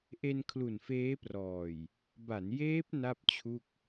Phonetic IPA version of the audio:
ʔ e˧ n kʰ l u˨˩ n f eː˦˥ p r ɔː˨˩ j | b a˩˦ n j eː˦˥ p̚ n a˥˩ p̚ t͡ɕʰ u˥˩ k̚

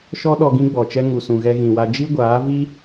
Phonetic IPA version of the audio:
ʃ ɔ˧ ɗ ɔ˧ ɡ ĩ˦ ɡ͡b ɔ˨ t͡ʃ ɛ˦ ŋ u˨ s ũ˨ ɣ ɛ˧ ɣ ĩ˨ w a˧ d͡ʒ i˦ ɡʷ aː˨˦ v i˦

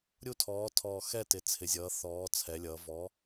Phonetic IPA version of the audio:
ɾʲ u˦˨ tʰ ɔː˩˧ tʰ ɔː˨˩ x ɛ˦˨ t ɪ˩˧ t͡sʰ ɪ˩˧ zʲ ʌː˩˧ θ ɔː˩˧ t͡sʰ ɛ˩˧ lʲ ʌː˩˧ v ɔ˨˥

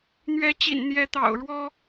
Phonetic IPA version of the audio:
n̪ ɥ ɛ˧˥ t͡ɕ ḭ˨˩ n n̪ j ɛ˧˥ t̪ ɑ̰˨˩ ʊ̯ ɻ w ɔ˥

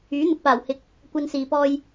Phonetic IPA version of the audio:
yː˨˥ n̪ ʊ˨ k̚ p aː˨˩ w h ɪ˨˥ k̚ | kʷ ɐ˧ n s iː˨ p ɔː˧ j

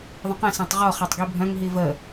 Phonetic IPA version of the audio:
ðˤ ə̃ q ɛ̃ s ã tˤ ʁ ɔ χ a tˤ ɡ i bʱ œ̃ ŋ ɦ i v ə

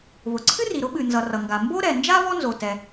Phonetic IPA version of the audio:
β ʊ˩ ǀʰ ɨ˥ r i˩ ɾ ʊ˥ ɓ ɨ˩ n z ʌ˩ r ʌ˩ ŋ ɡ a˩ m b o˥ ɾ ɛ˩ n d͡ʒ a˥ β ɔ˥ n z o˩ t ɛ˩

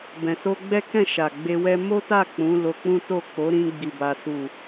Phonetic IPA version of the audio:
b ɛ̃˨ s o˧ ɡ͡b ɛ˦ k ɛ̃˦˨ ʃ a˨ ɡ͡b e˧ w ɛ˦ m o˦ t a˦˨ k͡p ũ˨˦ l o˧ k͡p ũ˦ t o˦˨ k͡p o˨˦ ɾ ĩ˧ ɡ͡b i˨ b a˨ s u˨

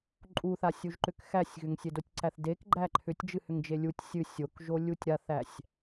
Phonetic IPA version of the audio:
ǃʼ u θ a sʲ u ʒ ǃ ʏ k x æ sʲ ɣ ʏ ŋ sʲ e d o tʲ ǀ æ θ d e k ɡ͡ǃ æ ǃʰ ʏ tʲ d͡ʒ ɨ h ʏ ŋ d͡ʒ e lʲ u tʲ sʲ ɨ sʲ o k ʒ o lʲ u tʲ ɾ a θ æ sʲ

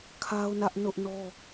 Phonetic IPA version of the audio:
kʰ a˦ ʊ̯ n ä˦ ʔ n ʊ˦ ʔ n ɔ˦

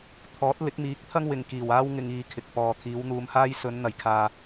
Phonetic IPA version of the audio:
t̪ʰ ɔː˨˥ t̚ l ɪ˨˥ k̚ m iː˨˥ k̚ t̪ʰ ɐ˥ ŋ w ɪ˨ ŋ k iː˨˩ w aː˥ w ŋ ɪ˧ ŋ iː˧ kʰ ɪ˨ k̚ p ɔː˨ t̪ʰ iː˨˧ w n̪ uː˧ m h aː˥ j s ɵ˨˧ n n̪ ɐ˨ j kʰ aː˧

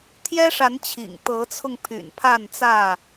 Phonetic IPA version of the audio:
t̪ʰ j ɛ˦ ʂ a˨˦ n t͡ɕʰ ḭ˨˩ ŋ t̪ ɤ˨˦ t͡sʰ ʊ˧ ŋ pʰ y̰˨˩ n pʰ a˥˨ n t͡s ä˥˨

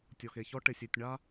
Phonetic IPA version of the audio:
tʲ ɔ˨ x e˨ ç ɔ˦ ʈ ɪ˨ sʲ e˨ tʲ ɳ a˦

